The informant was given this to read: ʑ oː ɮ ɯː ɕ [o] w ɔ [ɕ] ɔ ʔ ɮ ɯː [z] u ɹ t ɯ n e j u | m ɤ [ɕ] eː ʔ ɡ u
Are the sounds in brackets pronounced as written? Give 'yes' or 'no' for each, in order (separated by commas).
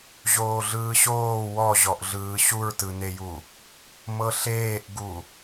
no, no, no, no